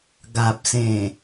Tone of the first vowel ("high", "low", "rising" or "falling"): low